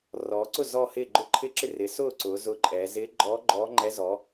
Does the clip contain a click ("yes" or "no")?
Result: yes